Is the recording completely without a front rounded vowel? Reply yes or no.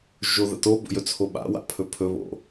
yes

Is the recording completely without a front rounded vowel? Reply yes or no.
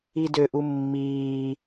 no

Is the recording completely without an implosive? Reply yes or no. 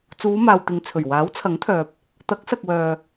yes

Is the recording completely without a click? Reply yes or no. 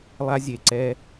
no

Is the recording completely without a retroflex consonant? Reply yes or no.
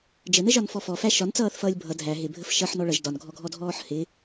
no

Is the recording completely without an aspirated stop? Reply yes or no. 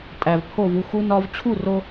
no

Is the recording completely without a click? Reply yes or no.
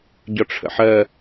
yes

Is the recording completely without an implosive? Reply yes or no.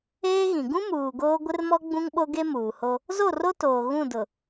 no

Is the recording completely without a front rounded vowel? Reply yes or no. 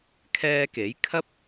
yes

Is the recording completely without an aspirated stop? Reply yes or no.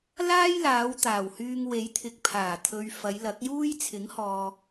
no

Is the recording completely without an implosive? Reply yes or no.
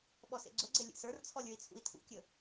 no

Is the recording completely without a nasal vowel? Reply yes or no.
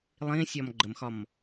no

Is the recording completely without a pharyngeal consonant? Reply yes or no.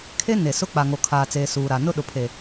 yes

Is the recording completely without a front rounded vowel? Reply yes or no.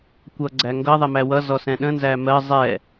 yes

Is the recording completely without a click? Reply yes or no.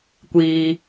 yes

